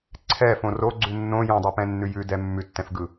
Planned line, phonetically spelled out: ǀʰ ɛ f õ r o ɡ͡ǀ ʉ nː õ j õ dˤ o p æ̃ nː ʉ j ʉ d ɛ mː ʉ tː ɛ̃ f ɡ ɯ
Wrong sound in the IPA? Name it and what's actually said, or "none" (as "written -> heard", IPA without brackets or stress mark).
æ̃ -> ɛ̃